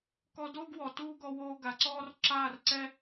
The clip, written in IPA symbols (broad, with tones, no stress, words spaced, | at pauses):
kɔ˧doː˦ɡ wɔ˨ tuː˦ɡɔ˧ woː˧ɡa˨ǀɔː˦r ǁaː˦˨rǀɛ˦